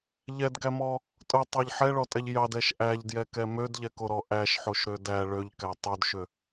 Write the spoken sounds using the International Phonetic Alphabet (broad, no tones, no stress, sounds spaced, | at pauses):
ʎ ɛ d ɡ æ m ɔ | tʼ ʊ tˤ ɑ ʎ ħ ɛ ɭ ɔ tʼ ɛ ʎ j ɑ d ɛ ʃ ʔ æ ʎ d j ɛ k ɛ m ø d ʎ ɛ k o ɾ ɔ ʔ æ ʃ ħ o ʃ ɾ ø d æ ɭ ø ʎ k æ tˤ o d ʃ ø